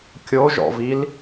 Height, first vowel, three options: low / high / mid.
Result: mid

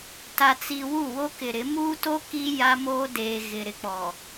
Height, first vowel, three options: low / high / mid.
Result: low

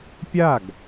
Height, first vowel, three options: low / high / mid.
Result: low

